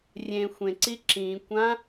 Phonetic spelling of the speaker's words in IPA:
rʲẽ xʷẽǀi ǁĩkʷã

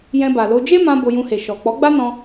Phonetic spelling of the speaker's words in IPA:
jɛ̃˧ba˨lo˧ d͡ʒe˦mã˧ bo˧jũ˧he˨ ʃɔ˨ k͡pɔ˨˦ɡ͡ba˦nɔ̃˧

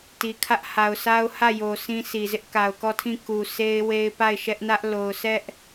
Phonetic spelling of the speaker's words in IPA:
ti˨kʰä˦ʔ ha˨ʊ̯sa˦ʊ̯hä˦˨jo˨ sĩ˦sʰi˨zɪ˦ʔ ka˨ʊ̯kɔ˦˨tʰĩ˦˨ ku˨se˦ɪ̯ we˦ɪ̯ pa˦˨ɪ̯ʃɛ˦ʔnä˦ʔ lo˨ʊ̯sɛ˦ʔ

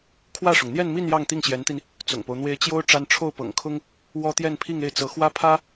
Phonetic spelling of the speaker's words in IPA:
kʰwä˥˩ʂʊ˩ŋ n̪jɛ˥˧nmi˥˧n jɑ˥˧ŋt̪i˥˩ŋɕjɛ˧˥nt̪i˧n | t͡sʊ̰˨˩ŋpo˦ʊ̯n̪we˥ɪ̯ t͡ɕjo˥ʊ̯ ʈ͡ʂa˥n ʈ͡ʂʰo˥˩ʊ̯pɤ̰˨˩ŋkʰʊ˥ŋ | wɔ˥t̪jɛ˥˧npʰi˥˧ŋ e˥˩ɪ̯t͡sɤ˧˥xwä˥pʰä˥

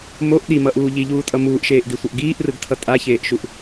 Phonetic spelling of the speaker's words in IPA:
moʔ ɗimʌʔuː ʎiʎuːtʼʌ muːʔʃeːʔdisʷʌʔ ɡiːʔrɯɡtʰʌ tʼaçeːʔʃuʔ

